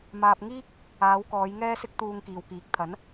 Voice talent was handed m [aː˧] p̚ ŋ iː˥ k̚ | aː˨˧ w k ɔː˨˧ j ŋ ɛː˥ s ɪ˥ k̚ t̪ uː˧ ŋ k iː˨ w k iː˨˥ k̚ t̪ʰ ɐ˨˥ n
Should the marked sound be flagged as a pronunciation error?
no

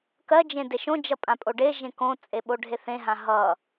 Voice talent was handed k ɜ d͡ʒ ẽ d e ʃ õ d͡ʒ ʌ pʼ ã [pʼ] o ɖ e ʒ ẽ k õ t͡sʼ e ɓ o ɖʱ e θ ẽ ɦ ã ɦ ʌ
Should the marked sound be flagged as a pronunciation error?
no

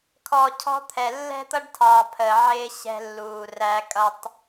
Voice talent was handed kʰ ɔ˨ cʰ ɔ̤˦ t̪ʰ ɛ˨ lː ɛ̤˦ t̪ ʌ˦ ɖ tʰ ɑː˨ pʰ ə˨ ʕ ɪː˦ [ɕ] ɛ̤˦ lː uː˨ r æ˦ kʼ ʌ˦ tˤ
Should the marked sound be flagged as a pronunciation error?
no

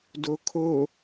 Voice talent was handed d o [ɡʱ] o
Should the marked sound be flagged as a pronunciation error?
yes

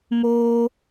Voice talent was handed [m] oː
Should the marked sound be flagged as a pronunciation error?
no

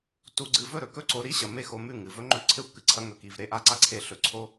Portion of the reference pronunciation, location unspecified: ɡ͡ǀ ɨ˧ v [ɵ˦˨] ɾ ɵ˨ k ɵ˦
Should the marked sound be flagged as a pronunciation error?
no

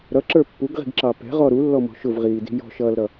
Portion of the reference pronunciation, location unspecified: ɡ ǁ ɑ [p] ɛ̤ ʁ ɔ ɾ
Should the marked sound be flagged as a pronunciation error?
no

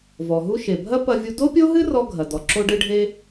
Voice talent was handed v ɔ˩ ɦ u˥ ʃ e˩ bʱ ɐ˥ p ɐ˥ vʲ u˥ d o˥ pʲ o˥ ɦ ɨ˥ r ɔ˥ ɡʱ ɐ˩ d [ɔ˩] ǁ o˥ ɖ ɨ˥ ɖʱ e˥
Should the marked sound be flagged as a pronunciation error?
no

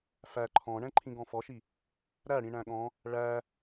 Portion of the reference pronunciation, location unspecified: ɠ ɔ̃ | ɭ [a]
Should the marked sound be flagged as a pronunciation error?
yes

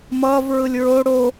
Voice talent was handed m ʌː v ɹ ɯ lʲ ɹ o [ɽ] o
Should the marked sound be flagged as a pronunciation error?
no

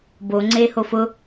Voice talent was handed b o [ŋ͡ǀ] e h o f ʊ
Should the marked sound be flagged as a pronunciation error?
no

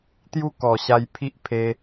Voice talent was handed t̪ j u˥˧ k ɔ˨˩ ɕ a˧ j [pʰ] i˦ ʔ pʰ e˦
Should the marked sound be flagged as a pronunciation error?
no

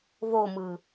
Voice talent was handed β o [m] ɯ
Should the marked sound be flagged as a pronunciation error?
no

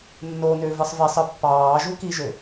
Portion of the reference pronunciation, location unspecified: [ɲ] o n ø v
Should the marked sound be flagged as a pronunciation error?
yes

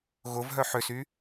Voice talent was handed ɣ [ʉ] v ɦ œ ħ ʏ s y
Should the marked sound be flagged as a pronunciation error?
yes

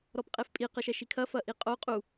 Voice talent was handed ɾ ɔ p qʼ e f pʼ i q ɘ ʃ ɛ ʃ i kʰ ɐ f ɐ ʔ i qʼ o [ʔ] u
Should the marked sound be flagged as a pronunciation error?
yes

